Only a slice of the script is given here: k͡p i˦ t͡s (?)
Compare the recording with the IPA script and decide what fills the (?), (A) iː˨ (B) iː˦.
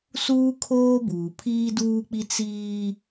B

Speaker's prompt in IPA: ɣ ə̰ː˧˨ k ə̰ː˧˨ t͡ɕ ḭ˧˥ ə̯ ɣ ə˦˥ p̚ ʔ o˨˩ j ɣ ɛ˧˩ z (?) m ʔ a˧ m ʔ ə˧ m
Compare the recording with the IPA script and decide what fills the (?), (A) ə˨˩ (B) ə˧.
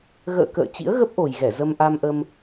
B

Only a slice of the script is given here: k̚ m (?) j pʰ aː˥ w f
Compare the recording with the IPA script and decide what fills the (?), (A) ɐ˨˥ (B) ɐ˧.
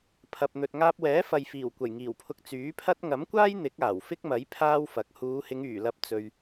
A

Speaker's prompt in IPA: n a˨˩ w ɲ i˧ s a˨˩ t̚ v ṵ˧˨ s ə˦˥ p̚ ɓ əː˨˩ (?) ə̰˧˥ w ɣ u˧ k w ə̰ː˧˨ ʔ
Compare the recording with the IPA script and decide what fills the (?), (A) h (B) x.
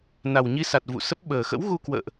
B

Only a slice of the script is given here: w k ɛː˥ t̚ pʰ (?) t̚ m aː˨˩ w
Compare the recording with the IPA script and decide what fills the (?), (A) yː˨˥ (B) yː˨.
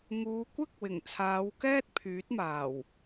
A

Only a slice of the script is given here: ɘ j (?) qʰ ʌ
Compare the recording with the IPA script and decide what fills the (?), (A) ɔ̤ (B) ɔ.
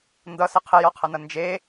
B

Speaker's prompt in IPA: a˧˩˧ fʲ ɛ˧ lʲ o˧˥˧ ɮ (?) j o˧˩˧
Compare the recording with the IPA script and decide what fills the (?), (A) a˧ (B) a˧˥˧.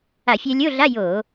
B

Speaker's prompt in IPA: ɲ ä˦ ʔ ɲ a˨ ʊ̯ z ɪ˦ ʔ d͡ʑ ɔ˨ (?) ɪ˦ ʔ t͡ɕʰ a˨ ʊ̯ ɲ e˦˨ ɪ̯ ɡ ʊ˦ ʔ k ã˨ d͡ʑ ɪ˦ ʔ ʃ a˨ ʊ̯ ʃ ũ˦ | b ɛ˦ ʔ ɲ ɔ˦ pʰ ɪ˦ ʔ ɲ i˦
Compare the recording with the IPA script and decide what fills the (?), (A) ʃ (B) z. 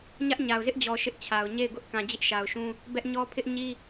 A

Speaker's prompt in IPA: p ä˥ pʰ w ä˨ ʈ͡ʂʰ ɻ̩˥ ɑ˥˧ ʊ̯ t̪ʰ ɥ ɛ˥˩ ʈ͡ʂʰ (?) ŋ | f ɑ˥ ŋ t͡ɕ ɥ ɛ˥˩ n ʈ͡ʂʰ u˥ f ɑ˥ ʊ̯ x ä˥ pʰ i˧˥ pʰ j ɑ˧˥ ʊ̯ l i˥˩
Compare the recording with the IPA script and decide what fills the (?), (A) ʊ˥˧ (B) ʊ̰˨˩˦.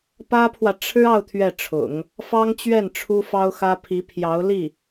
B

